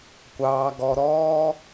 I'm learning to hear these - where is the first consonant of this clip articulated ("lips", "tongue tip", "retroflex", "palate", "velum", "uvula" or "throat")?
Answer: velum